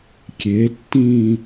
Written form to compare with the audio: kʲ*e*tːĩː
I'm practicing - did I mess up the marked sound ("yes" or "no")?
no